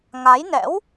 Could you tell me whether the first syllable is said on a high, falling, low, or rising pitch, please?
rising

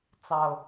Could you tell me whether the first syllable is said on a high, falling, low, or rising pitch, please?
low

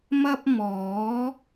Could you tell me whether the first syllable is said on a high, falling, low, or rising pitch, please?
high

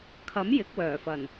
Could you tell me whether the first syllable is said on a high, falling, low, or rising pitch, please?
rising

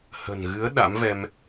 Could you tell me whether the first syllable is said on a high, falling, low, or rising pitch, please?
low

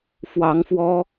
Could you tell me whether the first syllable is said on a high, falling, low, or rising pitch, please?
rising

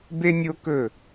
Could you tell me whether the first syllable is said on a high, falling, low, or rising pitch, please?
high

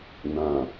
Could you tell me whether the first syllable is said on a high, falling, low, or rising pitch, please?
low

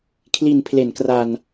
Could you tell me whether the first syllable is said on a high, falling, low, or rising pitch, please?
low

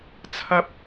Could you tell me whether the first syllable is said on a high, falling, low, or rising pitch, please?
high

